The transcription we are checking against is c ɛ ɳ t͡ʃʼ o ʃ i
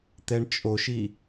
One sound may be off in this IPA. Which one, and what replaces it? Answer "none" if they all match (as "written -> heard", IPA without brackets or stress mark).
c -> t̪